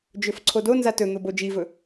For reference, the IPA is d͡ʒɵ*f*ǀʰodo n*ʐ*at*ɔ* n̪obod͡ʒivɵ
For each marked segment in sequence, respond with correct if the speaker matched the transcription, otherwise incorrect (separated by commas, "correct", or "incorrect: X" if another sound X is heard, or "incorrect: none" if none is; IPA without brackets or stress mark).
correct, incorrect: z, incorrect: ɵ